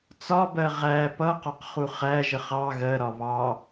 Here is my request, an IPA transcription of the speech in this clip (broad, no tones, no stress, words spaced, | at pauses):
t͡sɒbɜ ʁæ pʌqɒqχu χæʒəχ ɑ ɣɜɾɒ βɑ